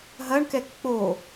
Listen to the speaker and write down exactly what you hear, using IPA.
ɦɐɳkɛk k͡po

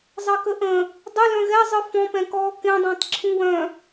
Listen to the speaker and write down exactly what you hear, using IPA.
zˤekəʔə̃ | dˤə lœ̃ɣɛ zˤɯfɔ̃pɛ̃kɔː kẽdˤə̃ːtˤ ǁʰũwœ̃

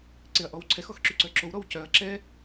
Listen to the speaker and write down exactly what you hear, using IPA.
ǀeɐ̯ʔɔwǀʰɛx ɔxǁyǀœǁow ɾɔwcœɐ̯ ǁɛ

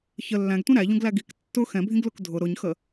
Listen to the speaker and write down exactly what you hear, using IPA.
çə lːæ̃ɡtʷĩ ɾæʎũɡlæ ɡik tːʊ xɛ̃bʱĩɡlʊk dʱʊ ɾʊɲxə

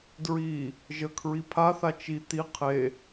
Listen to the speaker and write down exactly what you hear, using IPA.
dɹi | ʒəkʰɹi pʰaθa t͡ʃi t̪i qʰe

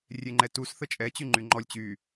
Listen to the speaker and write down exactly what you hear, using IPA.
rʲeŋ͡ǃɛtus θət͡ʃʼɛ t͡ɕyŋ͡ǃyŋ͡ǃɔlʲ t͡ɕy

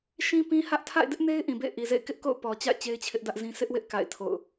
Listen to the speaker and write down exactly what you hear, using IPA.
ʃĩ˦pĩ˦ hä˦ʔ tʰa̰˦˨ɪ̯dɪ˦ʔne˦ɪ̯ ʔĩ˨bḛ˦˨ɪ̯ʔi˨zḛ˦˨ɪ̯ kɪ˦ʔko̰˦˨ʊ̯ pɔ˨ t͡ɕa̰˦˨ɪ̯ t͡ɕe˦ɪ̯t͡ɕʰɪ˦ʔdä˦ʔzĩ˦ sɪ˦ʔwɪ˦ʔ ka̰˦˨ɪ̯tʰo̰˦˨ʊ̯

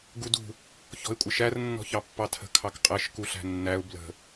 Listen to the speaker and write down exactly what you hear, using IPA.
ɡudṳ | çɔ̤ɪ̯kʷʼɪʃær nːɔ̤çɑpːɑtʰə̤ kʰɑkqʼɛʃ kuɬæ̤nːæʊ̯ blə̤

